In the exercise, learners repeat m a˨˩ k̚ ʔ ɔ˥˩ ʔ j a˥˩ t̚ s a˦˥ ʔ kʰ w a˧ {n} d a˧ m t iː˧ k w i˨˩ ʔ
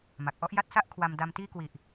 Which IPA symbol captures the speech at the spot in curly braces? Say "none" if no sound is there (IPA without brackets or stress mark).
m